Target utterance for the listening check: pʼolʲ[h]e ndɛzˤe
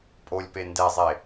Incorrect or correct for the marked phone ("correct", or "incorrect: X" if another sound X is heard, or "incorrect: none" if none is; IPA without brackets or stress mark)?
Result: incorrect: p